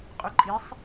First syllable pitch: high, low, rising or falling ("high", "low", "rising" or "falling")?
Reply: rising